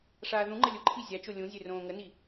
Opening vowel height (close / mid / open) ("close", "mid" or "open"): open